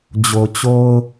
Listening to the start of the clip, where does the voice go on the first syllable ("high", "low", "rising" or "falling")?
low